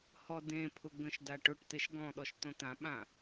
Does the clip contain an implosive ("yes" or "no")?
yes